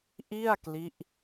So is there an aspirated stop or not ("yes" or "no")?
no